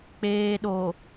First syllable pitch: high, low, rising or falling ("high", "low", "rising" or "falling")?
low